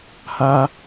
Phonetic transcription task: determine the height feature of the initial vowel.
low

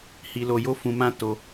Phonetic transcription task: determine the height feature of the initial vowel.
high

